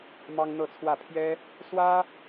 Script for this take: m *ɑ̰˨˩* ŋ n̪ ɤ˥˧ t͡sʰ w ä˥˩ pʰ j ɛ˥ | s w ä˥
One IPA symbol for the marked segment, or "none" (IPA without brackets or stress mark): ɑ˥